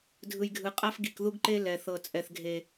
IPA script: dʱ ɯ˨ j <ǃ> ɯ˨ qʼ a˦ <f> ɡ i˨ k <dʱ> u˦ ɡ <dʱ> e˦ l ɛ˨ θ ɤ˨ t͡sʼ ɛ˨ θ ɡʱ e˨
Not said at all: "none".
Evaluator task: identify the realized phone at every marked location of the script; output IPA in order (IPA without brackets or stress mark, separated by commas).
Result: ɡʱ, f, ð, ǃ